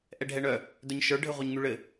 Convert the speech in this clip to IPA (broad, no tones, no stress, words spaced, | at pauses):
ʔɛɖʱɛɳœ | dœɲʃə˞ ɖʱɘʁʷœɲŋyɭɘ